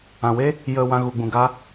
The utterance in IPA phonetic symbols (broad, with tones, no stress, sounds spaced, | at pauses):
ã˨ w e˦ | j ə˨ w ã˧ ɣ u˨ ɡ͡b ũ˨ ɡ a˦